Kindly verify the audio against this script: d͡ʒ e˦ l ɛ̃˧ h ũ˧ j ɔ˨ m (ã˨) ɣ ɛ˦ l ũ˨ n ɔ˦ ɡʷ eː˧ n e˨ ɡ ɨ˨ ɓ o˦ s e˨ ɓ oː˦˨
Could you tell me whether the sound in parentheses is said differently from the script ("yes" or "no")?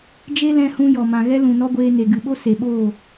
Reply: no